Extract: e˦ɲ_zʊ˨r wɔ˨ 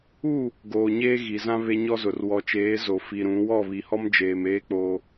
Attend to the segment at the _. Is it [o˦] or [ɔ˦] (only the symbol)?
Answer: ɔ˦